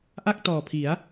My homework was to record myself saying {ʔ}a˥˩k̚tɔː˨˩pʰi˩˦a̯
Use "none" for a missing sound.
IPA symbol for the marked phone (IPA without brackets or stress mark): ʔ